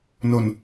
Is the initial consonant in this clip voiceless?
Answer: no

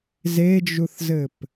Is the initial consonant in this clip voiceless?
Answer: no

